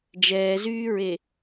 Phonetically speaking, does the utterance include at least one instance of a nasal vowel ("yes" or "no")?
no